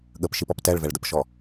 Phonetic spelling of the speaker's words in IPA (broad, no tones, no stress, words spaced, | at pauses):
ɠəpʃipɔp tɛɭvɛɭdəpʃɔ